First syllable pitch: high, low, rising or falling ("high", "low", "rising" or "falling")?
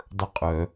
falling